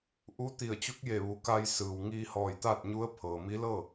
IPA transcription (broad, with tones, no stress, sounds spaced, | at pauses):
ʔ u˧˥ t̪ i˧˩ ə̯ t͡ɕ u˧˥ k̚ j eː˧˩ ʋ u˩˧ k a˧ j s ɯː˩ w ŋ iː˧ h ɔː˧˩ j t̪ aː˥˨ t̚ ɲ u˧˥ ə̯ pʰ ɤː˩ m i˧˥ l ɤː˥˨